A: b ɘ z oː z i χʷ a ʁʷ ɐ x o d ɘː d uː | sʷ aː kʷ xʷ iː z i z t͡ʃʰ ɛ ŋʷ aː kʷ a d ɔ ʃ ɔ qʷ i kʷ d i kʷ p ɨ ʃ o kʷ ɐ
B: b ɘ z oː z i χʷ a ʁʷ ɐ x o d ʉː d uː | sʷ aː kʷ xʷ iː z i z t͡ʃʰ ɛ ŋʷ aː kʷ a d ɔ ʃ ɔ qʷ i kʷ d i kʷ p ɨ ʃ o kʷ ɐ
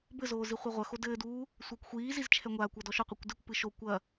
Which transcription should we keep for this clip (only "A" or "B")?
A